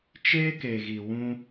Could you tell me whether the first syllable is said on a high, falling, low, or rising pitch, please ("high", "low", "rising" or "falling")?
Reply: high